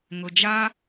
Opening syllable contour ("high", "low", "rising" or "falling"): low